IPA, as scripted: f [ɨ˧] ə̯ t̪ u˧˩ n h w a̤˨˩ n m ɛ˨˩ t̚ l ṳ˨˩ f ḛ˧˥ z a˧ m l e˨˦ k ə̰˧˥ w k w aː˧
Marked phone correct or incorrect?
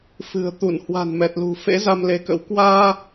incorrect